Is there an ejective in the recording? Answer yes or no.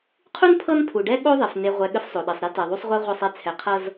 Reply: no